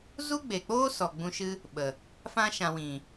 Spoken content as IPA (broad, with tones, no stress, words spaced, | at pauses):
zu˦ɡ͡be˨k͡poː˦ sɔ˨ɡ͡bũ˧ʃɨ˦ | ɓə˨ | fã˧ ʃã˨wĩ˨